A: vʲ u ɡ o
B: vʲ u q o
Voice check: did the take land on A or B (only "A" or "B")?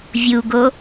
A